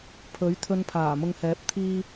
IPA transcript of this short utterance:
pʰ ɵ˨˥ ɥ t̪ʰ ɵ˧ n pʰ aː˨˩ m ʊ˨ ŋ h ɛː˨˥ p̚ t̪ʰ iː˧

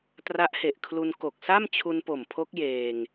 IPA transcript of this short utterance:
t r a˦˥ ʔ h e˨˩ ʔ kʰ l u˧ n k o˨˩ k̚ s a˥˩ m t͡ɕʰ u˧ n p o˨˩ m pʰ o˦˥ k̚ j eː˧ ŋ

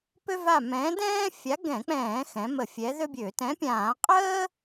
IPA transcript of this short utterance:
p ø˥ v a˦˨ m ɛ̃ː˨˥ d ɛ̃ː˥ fʲ a˨˥ ɡ ɛ̃˧˩˧ k͡p ɛ̃ː˧˩˧ x ɛ̃˩˧ m ə˧˩˧ fʲ ɛ˨˥ ð ø˥ bʲ ø˧˩˧ t ɛ̃˨˥ pʲ ãː˧˩˧ qʼ əː˥

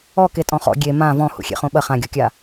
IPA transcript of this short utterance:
ɔ k e tʼ ɔ̃ χ ɔ̰ ɡʲ e m ã v ɔ̃ h ṵ xʲ ḛ χ õ ɓ ɐ χ ã ɡʲ ɔ kʲ a

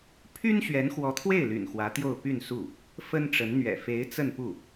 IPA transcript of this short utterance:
pʰ y˥ n ɕ ɥ ɛ˧˥ n x w ɔ˧˥ t̪ʰ w e˥˩ ɪ̯ l y̰˨˩ n x w ä˧˥ t̪ j o˥˧ ʊ̯ p y˥˧ n s u˥˩ | f ə˥ n ʈ͡ʂ ə˧˥ n n̪ ɥ ɛ̰˨˩ f e˧˥ ɪ̯ t͡s ə˥˧ n p u˥˩

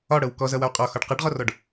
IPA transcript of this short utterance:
ɒ ɽ ɤ w k ɔ z ʌ w ʌ w qʼ ɒ x ɒ ɖ q ʌ ɖ ʁ ɔ r ɔ ɖ

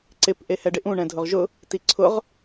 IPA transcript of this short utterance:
ǀ ɪ p ʔ e h ɛ ɖ ɪ ʔ ũ ɳ ɛ̃ dʱ ʊ ʁ ʒ ʊ | t i ǀʰ ʊ ʁ

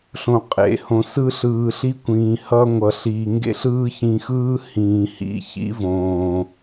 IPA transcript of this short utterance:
ɬ õ˧ qʼ ḛ˨˦ h õ˧ s ɯ˦ ɬ ɯː˧ ɬ i˦ kʷ ĩː˨ h ʌ˧ ŋʷ ʌ˨ ɬ iː˨ ŋ ɡ ḛ˦ ɬ ɯː˦ ç ĩ˧ x ɯː˦ h ĩː˨ h ḭ˧ ç ḭ˦ v õː˨

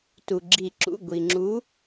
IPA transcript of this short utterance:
t u˩ ɡ͡ǁ i˨˩˦ ǁ ṵ˩˧˩ ɡʷ i˩ ŋ͡ǁ u˨˦

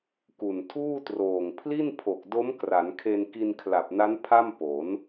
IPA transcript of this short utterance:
k u˨˩ n tʰ uː˥˩ t r oː˨˩ ŋ pʰ l i˥˩ n pʰ o˨˩ k̚ d o˦˥ m k r a˩˦ n kʰ e˧ n k i˧ n kʰ l a˨˩ p̚ n a˦˥ n pʰ a˥˩ m p o˩˦ n

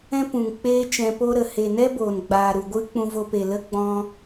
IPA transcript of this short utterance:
ɛ̃˦ p ũ˨ ŋ k͡p eː˦ t͡ʃ ɛ̃˧ p o˦ ɾ ə˨ h e˨ n ɛ˦ b oː˨ n ɡ͡b aː˨ ɾ u˨ ɡʷ ɨ˦ k͡p ũ˧ v o˧ p e˨ l ə˦ ɡ͡b ɔ̃˦

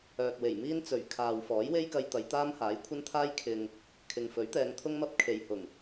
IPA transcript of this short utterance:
œː˨ k̚ w e˨˩ j m iː˥ n t͡s ɵ˨˩ ɥ kʰ aː˨ w f ɔː˨˥ j w e˥ j k ɐ˧ j t̪ ɐ˨˧ j t̪ aː˥ m h aː˨˥ j kʷʰ ɐ˥ n t̪ʰ aː˥ j kʰ ɪ˨ ŋ | kʰ ɪ˨ ŋ f ɵ˨˥ ɥ t̪ ɛː˨˧ ŋ t̪ʰ ʊ˥ ŋ m ɐ˥ p̚ kʰ e˨ j h ʊ˨˩ ŋ

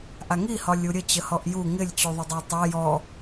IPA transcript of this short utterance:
ʔ a ŋ i h ɒ lʲ u ɾʲ ə t͡ɕ ə h ɔ ʔ j u ŋ ɪ lʲ t͡ɕ u ðˤ ə dˤ a tˤ a j ɔ

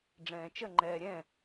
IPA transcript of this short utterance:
ɖ͡ʐ ɛ̃ː t͡ʃ ə ŋ͡ǃ ɛː ɾʲ ɛ̃

